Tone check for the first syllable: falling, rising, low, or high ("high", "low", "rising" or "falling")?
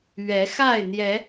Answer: rising